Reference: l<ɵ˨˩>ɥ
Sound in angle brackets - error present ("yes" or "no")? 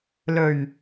no